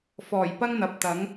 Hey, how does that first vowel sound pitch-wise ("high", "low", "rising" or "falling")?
low